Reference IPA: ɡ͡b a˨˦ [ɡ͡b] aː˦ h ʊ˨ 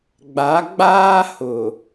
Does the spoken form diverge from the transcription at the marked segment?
no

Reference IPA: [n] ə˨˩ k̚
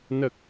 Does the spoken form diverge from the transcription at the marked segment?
no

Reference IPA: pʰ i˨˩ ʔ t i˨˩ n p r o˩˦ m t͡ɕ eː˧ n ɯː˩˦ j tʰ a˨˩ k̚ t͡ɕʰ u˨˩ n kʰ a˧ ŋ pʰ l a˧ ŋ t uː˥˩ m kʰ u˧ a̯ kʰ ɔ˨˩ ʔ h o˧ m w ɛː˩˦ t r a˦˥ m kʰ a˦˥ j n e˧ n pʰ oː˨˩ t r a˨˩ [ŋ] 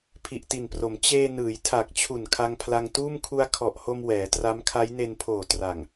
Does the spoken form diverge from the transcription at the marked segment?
no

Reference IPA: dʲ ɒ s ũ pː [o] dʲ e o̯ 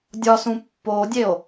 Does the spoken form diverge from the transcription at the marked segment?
no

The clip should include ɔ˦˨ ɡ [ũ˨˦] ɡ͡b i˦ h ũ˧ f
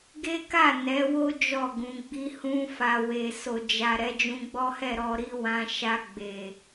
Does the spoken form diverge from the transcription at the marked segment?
no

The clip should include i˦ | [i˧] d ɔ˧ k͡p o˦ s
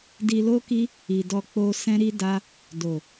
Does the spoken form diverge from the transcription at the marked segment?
yes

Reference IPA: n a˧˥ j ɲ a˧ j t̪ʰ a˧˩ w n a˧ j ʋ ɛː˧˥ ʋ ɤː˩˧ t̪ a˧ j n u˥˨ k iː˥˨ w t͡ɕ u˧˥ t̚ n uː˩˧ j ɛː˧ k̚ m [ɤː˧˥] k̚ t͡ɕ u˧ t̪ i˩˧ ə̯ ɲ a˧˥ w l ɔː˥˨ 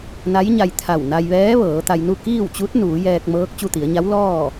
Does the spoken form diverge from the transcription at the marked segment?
no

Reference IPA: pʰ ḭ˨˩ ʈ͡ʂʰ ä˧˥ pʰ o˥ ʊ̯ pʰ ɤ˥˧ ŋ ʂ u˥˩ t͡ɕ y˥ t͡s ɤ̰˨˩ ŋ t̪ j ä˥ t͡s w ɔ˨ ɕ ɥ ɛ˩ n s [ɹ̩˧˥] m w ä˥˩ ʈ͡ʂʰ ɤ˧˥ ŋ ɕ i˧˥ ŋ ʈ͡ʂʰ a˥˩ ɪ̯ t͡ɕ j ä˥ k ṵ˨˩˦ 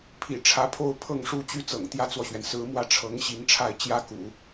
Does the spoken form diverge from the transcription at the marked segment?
no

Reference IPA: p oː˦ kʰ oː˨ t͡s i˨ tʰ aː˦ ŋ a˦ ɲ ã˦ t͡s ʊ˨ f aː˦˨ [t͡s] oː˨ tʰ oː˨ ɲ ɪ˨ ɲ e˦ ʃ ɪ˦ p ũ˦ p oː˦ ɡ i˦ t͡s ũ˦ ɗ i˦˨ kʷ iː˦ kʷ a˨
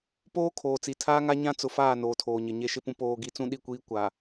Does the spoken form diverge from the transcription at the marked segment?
yes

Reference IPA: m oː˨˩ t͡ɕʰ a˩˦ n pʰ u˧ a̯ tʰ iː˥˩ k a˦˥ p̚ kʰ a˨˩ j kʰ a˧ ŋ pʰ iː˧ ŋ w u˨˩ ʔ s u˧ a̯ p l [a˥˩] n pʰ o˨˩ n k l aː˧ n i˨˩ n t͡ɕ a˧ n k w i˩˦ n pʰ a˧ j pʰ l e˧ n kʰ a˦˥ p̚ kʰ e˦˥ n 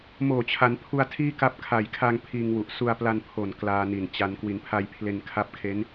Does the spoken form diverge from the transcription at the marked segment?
yes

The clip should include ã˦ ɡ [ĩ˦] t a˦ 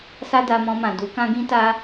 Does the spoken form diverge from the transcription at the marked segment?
no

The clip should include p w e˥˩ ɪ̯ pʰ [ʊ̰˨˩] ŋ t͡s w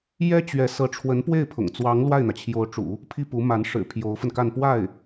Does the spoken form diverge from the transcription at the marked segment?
no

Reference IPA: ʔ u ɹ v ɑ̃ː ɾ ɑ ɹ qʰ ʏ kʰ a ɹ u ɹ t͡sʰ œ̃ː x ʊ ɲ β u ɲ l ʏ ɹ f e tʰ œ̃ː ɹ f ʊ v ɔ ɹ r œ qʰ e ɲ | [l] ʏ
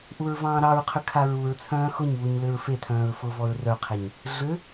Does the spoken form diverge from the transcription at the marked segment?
yes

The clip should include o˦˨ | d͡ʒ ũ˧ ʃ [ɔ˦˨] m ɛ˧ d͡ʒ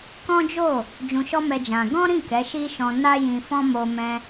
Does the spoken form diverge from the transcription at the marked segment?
yes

